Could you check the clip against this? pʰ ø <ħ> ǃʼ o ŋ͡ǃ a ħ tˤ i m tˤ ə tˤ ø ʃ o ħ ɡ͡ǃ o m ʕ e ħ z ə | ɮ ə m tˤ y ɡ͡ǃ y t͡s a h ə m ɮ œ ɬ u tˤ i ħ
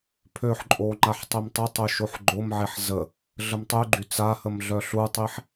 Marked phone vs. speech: correct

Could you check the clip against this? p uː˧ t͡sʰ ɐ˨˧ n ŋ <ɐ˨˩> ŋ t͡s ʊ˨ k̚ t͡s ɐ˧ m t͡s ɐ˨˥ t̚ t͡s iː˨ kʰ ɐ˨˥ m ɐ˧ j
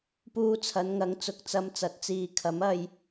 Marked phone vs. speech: incorrect: ɐ˨˥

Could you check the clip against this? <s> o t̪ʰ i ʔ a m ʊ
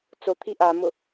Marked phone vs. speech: incorrect: t͡s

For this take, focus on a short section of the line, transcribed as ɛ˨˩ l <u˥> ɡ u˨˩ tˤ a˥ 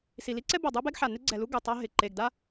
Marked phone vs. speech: correct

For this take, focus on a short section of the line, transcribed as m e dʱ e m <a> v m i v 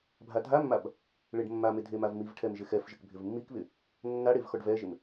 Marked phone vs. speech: correct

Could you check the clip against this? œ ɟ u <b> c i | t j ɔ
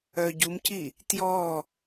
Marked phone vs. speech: incorrect: m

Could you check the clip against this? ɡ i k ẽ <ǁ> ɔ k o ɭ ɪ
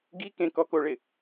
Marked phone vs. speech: incorrect: k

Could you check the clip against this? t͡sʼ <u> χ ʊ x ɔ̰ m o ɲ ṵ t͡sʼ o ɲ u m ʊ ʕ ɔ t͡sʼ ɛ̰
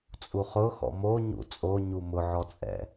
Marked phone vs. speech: correct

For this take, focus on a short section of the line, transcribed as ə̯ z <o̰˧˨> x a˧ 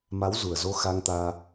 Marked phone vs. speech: incorrect: o˧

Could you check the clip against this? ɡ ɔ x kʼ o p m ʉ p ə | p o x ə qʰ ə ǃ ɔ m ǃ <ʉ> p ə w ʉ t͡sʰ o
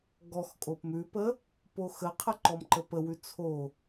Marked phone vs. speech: incorrect: ə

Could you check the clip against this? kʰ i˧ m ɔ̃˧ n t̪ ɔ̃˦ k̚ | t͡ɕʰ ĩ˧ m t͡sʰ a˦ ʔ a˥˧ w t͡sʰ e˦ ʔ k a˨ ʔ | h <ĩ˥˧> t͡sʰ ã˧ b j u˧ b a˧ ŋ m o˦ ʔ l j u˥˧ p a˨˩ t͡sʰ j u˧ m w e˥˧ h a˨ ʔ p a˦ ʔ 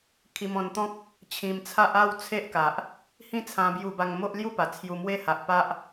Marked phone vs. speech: correct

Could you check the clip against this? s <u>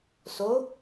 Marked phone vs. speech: incorrect: o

